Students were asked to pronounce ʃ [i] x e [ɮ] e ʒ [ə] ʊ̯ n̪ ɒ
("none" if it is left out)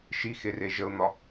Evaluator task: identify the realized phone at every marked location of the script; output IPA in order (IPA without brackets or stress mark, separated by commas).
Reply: i, r, ə